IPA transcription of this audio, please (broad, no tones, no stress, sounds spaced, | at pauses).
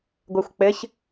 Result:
ɡʷ ɜ xʷ k͡p ɘ ç